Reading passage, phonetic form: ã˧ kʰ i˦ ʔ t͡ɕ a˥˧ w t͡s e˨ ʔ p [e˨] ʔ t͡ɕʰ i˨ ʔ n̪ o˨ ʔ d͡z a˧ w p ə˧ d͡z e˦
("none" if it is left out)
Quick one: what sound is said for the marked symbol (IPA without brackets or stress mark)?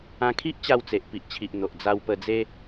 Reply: i˨